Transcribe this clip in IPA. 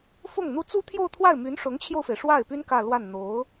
fʊ˥˩ŋn̪u˥ t͡su˥t̪ʰjo˥˧ʊ̯t̪ʰwa˥˩ɪ̯ my˧˥nʂʊ˧˥ŋt͡ɕʰjo˧ʊ̯fe˩ɪ̯ ʂwa˥˩ɪ̯py˥n kä˥˧lwa˥˩n n̪o˧˥ʊ̯

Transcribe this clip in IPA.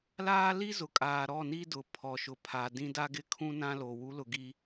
laː˦li˦zʊ˨kʼaː˨ ɾɔ˦˨ni˦dʊ˨ pʰɔ˨ʃʊ˨ pʰa˨ dĩ˦ da˦ɡɪ˦kʰũ˦ nã˦lo˨ wu˨˦lʊ˨ ɡi˦

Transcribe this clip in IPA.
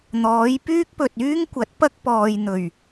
n̪ɔː˨˥jpyː˥k̚pɵ˨t̚ yː˥ŋ kʷɐ˨˥t̚pɐ˥k̚pɔː˨j n̪ɵ˨˩ɥ

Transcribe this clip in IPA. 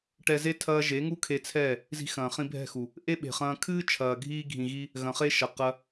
ʈɛ˧ze˦ tʰɐː˦ ʒe˨˦ŋu˦kʰe˧t͡sʰɛː˦˨ | zi̤˧xɐ̃ː˨χĩ˧ bʱɛ̤˦˨xu˨ | ʔe˦ɓe̤˨χɐ̃ː˧ kʰɨː˦t͡ʃʰɐː˨ɡʱiː˧ ɡʱĩ˨ɣi˧ | ɣɐ̃˨χe˧ ʃɐ˨ qɐ˧

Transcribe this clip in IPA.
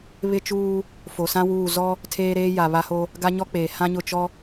βɪ˦t͡ʃuː˦ | fo˨sã˦wuː˦˨ zɔ˦ | tʰeː˦ɾeː˦ja˨ βa˦ho˦ | ɡa˦ɲɔ˦k͡peː˨ hã˦ɲʊ˦˨ t͡ʃɔ˦

